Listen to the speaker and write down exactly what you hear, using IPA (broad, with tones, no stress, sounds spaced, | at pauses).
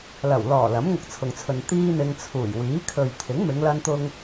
l ɐ˨˩ w l ɔː˨˩ l ɐ˨˥ m ŋ ʊ˧ k̚ t͡sʰ ʊ˨ ŋ t͡sʰ ɵ˨ n t̪ iː˥ n̪ ɪ˧ ŋ t͡sʰ uː˨˩ j w iː˨˥ kʰ ɵ˨ ɥ t̪ʰ ɪ˨˥ ŋ m ɪ˨˧ ŋ l ɐ˧ n t̪ ʊ˧ ŋ